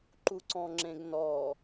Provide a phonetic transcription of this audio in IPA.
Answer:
ǃ u ǀ ɔ̃ ŋ͡ǁ ẽ ɡ n ɔ

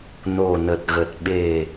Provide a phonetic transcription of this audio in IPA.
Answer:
n o˨˩ n ə˨˩ t̚ ɣ ə˨˩ t̚ ɓ e˨˩

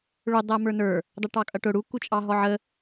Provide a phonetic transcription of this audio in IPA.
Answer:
ɭ ʊ dˤ æ m ə˞ n ə˞ | dˤ ə ʈ ɑ kʼ ʌ ʈ ʊ ɽ u k u t͡ʃʼ ɑ ɦ ɔ ʕ ə

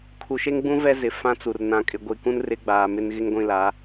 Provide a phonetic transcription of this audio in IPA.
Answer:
kʰ u˨ ʃ e˦ ŋ ɡ͡b ũ˦ v ɛ˦ z ɪ˨ f ã˦ t͡s u˨ r n ã˨ kʼ ɪ˨ ɡʷ i˨ k ũ˦ n r ɪ˦ ɡ͡b aː˨ m ɪ˦ n ɣ ɪ˦ ŋ ɡʷ ĩ˦˨ l a˨˦

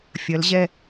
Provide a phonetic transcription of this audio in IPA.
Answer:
fʲ ɐ˨˦ l ʑ ɛ˥˧

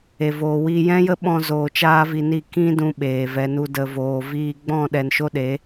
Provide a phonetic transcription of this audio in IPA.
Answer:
e˨ v oː˨ w iː˧ j ɛ̃˦ j ə˦ ɓ ɔ̃˧ z oː˨ t͡ʃ aː˦ v i˧ n i˦˨ k ĩ˦ d ũ˧ ɓ eː˨ v ɛ˨ n u˧ d ə˨ v oː˨ v iː˧ ɡ͡b ɔ̃˦˨ ɗ ɛ˨ n ʃ o˦ ɗ e˨˦

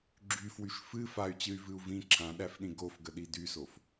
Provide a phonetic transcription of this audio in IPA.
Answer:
ɡ͡ǁ y f w y ʃ f ɨ f a y̯ t͡ɕ ɨ y̯ v ɨ u̯ v ĩ ǁʰ ã ɗ æ f ɗ ĩ ɡ o f ɡ ə ɗ i d y s o f

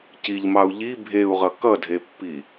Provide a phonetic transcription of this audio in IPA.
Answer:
c i ʎ m ɑ u̯ ʎ i bʱ e u̯ ʁ ʌ k ʌ dʱ e pː i

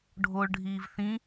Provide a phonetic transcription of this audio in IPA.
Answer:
ɖʱ o ɭ ɖʱ iː v θ ĩ

